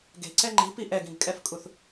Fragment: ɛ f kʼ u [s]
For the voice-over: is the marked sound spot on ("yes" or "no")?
no